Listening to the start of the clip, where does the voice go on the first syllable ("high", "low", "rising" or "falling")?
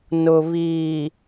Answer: low